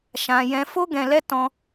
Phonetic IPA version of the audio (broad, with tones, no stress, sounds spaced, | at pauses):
ʃ ã˧ j ɛ̃˧ f o˦ ɡ ɛ̃˧ l ɛ˦ t ɔ̃˧